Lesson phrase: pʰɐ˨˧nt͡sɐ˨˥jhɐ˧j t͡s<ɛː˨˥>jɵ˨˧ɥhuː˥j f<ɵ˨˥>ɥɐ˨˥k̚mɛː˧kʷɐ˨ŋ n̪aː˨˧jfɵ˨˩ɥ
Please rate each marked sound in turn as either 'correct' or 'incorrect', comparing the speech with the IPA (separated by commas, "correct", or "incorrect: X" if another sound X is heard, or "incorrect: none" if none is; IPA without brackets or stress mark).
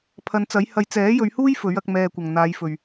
correct, correct